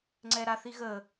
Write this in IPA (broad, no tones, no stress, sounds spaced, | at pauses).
ŋ͡ǀ ɛ ɾ a θ i ɣ ə